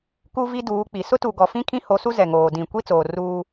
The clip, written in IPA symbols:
k u˦ v i˦ d uː˨˦ k͡p i˨ s ʊ˦ t u˨ ɡ ɔ˨ f ĩ˦ kʰ ĩ˦ h o˨˦ s u˦ z ɛ˨ ŋ oː˨ d ĩ˨ kʷ i˦ t͡s oː˨ r uː˦

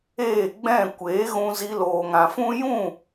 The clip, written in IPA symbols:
eː˦˨ ɡ͡b ɛ̃˦˨ kʷ eː˨˦ ɣ ũ˧ z i˧ l oː˨ ŋ ã˨ f ũ˦ j ũ˦˨

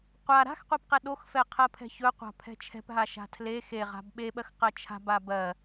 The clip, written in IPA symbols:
qʷ a ɾ a̤ x qʷ ɛ p q ɛ ɗ o x f ɛ qʰ ɜ pʰ ɛ̤ ç ɵ qʷ a̤ pʰ ɛ̤ t͡ʃʰ ɛ̤ p ɦ a ʃ a̤ tʰ l e x e ʁ a̤ b ɓ e ɓ ɜ x q ɜ t͡ʃʰ a̤ b a b ɜ

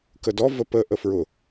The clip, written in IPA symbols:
k ə d ɔ v ə p ə ʔ ə f ɹ ʊ

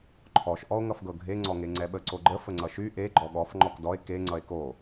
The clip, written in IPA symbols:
ǃʰ ɔ ʃ ʔ ɔ o̯ ŋ ʌ f ɡ ɤ ɡʱ e ŋ͡ǀ ɔ ŋ e ŋ͡ǀ ɛ ɓ ə ǀ o ɡ͡ǃ ə f ə ŋ͡ǀ ʌ ʃ y ʔ e ɡ͡ǃ ɔ ɠ ɔ f ŋ͡ǃ ɔ k d ɔ e̯ k e ŋ͡ǀ ʌ e̯ k o

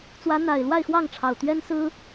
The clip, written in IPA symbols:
t͡s w ä˨˦ n̪ a˨˩ ɪ̯ l w a˥˨ ɪ̯ x w ɑ˥˨ ŋ ʈ͡ʂʰ ɑ˨˩ ʊ̯ t̪ ɥ ɛ˦ n s ɹ̩˦

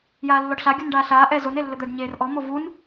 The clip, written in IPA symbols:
j aː lː ɔ ɖ ɬ a ɡʲ u n ɖ aː ɬ aː ʔ ɛ z o n e lː ɘ d̪ ɛ ɖ ɲ eː r ʔ ɔ m o v u n

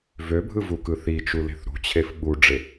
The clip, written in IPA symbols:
v ø bʱ ɯ v u k ɯ θ i t͡ʃ u l e̤ θ ɾ ṳ t͡ɕʰ e f ɓ u ɖ͡ʐ e

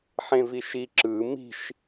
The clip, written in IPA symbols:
ħ ẽ v i ʃ i ǁ ɯ m i̤ ʃ

